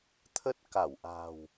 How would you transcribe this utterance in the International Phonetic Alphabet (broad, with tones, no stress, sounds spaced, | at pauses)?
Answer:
t̪ʰ ə˦˥ t̚ k a˧˩ w ʔ a̤˨˩ w